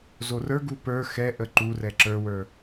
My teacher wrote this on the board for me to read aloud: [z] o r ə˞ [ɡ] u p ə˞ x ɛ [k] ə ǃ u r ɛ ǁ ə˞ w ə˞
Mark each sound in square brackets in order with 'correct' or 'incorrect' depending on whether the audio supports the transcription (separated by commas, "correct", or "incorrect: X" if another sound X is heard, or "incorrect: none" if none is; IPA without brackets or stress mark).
correct, correct, incorrect: ʔ